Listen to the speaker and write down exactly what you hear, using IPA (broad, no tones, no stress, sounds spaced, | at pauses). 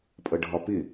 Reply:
pʼ ʌ ɖʱ ɒ p ɪ